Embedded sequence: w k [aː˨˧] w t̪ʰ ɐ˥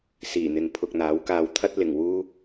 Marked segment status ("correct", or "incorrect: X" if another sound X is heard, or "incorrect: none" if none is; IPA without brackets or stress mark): incorrect: aː˧